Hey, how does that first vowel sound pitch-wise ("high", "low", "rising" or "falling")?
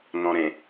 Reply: low